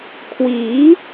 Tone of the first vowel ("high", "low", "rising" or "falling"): rising